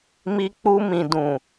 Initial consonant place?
labial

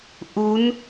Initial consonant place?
glottal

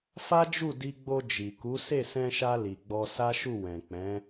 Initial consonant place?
labial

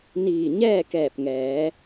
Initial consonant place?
alveolar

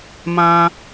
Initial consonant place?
labial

